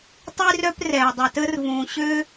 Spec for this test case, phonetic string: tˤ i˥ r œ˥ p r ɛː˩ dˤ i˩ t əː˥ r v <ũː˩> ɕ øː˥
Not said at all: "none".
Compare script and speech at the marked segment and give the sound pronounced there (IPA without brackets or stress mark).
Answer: ũː˩